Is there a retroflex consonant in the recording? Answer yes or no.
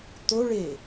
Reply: yes